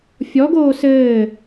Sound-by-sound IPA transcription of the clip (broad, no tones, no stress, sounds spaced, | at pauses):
fʲ ɔ ɡ oː s ɘː